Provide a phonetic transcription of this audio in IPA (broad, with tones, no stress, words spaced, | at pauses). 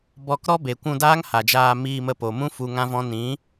bɔ˧kɾɔ˦be˨ kʷũ˧daː˦ŋ ha˨d͡ʒaː˧ miː˧mə˧po˨mũ˦ fu˧ŋã˦vɔ̃˦ nĩ˨˦